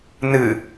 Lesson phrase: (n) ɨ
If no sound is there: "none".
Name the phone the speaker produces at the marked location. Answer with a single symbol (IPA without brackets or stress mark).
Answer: n